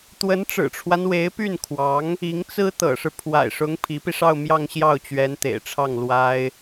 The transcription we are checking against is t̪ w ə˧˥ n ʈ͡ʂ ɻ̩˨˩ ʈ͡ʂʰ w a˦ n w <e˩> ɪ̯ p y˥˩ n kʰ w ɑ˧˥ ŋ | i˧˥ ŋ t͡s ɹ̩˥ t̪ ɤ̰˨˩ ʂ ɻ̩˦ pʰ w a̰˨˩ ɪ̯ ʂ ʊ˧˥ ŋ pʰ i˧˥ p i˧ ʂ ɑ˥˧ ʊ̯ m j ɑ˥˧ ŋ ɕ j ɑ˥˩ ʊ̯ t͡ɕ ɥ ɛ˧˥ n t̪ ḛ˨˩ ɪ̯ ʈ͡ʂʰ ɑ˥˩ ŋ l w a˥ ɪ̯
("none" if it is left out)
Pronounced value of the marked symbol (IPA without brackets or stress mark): e˧˥